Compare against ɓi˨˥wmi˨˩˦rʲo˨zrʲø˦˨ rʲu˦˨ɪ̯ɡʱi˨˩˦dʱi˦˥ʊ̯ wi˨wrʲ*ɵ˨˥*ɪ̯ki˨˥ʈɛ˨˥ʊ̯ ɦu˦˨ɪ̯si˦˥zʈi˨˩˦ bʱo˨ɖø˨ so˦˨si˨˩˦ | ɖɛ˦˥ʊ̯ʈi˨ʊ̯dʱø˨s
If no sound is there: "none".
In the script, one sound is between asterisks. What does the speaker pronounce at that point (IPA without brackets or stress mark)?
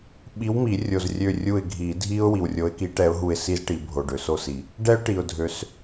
o˨˥